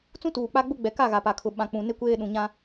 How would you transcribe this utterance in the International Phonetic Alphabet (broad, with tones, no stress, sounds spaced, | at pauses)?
t͡s ũ˦ t uː˨ k͡p a˦ ɡ͡b ʊ˦ ɡ͡b ɛ˨ k a˦˨ ɣ a˨ p a˨ kʰ ʊ˨ ɓ ã˨ k͡p ũ˨ n ɪ˦ kʷ eː˦ ɗ ũ˨ ɲ ã˦